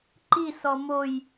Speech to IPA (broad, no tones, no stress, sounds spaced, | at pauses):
ǃ i s ɔ m o j